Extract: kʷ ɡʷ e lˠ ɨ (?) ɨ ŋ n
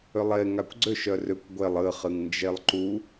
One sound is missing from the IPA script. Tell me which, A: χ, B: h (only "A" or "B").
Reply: A